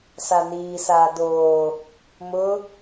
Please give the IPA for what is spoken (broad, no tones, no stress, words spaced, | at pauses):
saniː saːdoː | mʊ